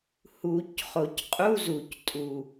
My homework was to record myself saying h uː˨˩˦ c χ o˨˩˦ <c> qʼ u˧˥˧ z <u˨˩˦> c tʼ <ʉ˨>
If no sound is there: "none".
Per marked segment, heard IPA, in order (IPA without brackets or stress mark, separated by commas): c, u˨˩˦, u˨